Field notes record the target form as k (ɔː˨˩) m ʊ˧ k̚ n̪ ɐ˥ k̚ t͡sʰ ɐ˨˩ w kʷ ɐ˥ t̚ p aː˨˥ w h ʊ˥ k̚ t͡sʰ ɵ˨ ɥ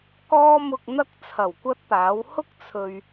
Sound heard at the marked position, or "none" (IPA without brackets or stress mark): ɔː˥